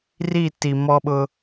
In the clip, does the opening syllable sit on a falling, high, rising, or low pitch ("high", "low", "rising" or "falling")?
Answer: falling